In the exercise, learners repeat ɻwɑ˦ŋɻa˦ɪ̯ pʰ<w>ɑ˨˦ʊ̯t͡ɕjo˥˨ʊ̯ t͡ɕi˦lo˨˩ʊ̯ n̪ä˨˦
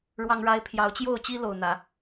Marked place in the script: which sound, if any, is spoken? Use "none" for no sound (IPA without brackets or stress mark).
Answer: j